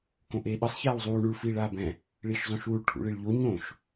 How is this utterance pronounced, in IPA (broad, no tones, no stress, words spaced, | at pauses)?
kõʔeːɗɯsˤ çaːwzˤuː ɳuɭ fiːɭaːbɛ̃ | ɭiːʃzˤõʃuːɭ ʈʰṵɭiɭʎo ɲõʃ